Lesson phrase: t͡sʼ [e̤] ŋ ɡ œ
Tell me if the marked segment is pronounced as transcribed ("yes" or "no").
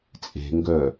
yes